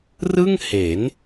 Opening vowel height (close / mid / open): close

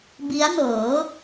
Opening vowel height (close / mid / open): close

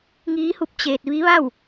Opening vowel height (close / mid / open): close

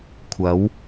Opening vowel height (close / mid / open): open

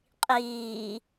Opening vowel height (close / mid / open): close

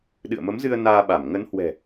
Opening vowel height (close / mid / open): close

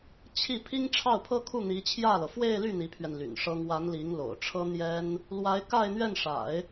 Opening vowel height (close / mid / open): close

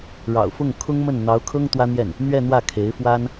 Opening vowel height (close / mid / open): open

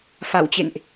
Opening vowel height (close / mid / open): open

